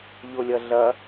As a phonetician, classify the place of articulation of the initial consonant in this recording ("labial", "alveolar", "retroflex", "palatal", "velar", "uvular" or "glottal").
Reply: palatal